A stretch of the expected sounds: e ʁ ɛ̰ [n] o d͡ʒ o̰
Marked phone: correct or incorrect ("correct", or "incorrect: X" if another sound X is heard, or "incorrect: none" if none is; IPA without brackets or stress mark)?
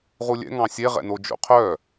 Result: correct